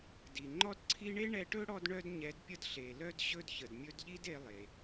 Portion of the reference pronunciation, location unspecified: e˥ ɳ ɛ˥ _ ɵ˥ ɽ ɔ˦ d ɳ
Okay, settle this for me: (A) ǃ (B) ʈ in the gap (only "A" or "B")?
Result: B